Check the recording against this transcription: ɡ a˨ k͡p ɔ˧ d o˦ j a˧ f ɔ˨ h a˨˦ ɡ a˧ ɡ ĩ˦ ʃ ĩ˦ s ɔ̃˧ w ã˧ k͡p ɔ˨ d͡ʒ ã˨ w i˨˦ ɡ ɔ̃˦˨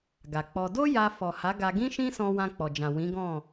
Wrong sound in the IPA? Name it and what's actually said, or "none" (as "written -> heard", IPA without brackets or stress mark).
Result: i˨˦ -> ĩ˨˦